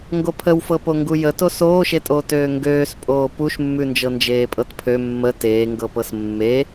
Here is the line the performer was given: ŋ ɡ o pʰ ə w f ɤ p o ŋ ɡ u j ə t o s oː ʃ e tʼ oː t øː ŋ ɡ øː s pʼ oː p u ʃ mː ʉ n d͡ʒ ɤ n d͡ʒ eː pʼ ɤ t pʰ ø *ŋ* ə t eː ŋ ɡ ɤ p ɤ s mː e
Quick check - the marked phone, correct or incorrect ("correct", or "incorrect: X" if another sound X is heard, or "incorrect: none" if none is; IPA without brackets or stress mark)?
incorrect: mː